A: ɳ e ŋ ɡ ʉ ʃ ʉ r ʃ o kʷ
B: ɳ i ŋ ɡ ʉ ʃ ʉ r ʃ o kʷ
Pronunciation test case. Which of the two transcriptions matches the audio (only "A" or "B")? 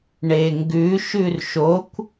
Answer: A